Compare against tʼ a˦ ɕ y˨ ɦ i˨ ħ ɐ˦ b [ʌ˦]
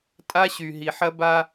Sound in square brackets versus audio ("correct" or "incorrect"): incorrect